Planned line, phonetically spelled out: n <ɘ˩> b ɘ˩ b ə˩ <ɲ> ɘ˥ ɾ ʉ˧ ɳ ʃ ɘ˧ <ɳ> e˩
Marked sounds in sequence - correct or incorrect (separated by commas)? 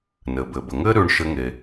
correct, incorrect, incorrect